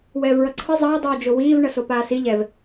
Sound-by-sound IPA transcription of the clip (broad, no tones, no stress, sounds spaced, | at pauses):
w ɛː v ɹ ʌ ǀʰ ɯ zˤ ʌː dˤ uː d͡ʒ o w iː v ɳ ʌ s o p aː s i ʎ ɛ v